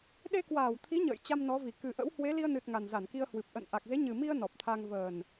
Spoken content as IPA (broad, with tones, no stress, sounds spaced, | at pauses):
ɗ e˧ k w aː˧˩ w t̪ʰ i˨˦ ɲ ə̰ː˧˨ j t͡ɕ a˧ m n ɔ˨˦ v i˧˩ k ɨ˨˩ ʔ ə̰˧˥ w h w e˨˦ l i˧ ə̯ n ɨ˨˩ t̚ ŋ a˨˩ n z a˧˩ n k i˧ ə̯ h w ɨ˨˩ p̚ ʔ ə̰˧˨ n ʔ a˨˩ k̚ z e˨˦ ɲ ɨ˨˩ m i˧ ə̯ n ɔ˨˩ p̚ t̪ʰ a˧ ŋ v əː˨˩ n